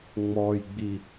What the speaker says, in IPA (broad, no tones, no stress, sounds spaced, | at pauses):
ŋ͡m ɔ j ɡ͡b i